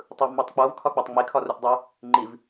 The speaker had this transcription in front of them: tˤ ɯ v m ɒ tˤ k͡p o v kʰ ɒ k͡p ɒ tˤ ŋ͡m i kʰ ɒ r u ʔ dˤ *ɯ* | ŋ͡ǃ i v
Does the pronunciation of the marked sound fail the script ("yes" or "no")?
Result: no